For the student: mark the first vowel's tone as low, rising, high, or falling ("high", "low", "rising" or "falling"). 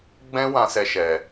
high